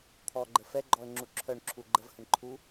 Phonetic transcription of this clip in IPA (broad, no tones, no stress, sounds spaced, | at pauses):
t̪ʰ ɔ ɡ͡ǃ ə f ɛ ɡ͡ǃ ɔ ə̯ ŋ͡ǁ u ǁʰ œ ɳ ǁʰ u ɡ͡ǃ ə v h ə ɳ ǃʰ u